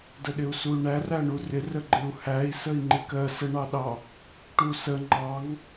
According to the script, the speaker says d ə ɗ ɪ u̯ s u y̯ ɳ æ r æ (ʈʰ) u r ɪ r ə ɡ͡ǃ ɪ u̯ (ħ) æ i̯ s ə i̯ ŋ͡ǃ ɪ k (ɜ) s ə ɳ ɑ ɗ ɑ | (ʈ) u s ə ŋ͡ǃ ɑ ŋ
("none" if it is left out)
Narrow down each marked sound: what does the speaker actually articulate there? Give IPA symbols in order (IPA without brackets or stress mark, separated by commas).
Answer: ɳ, h, ɜ, ʈ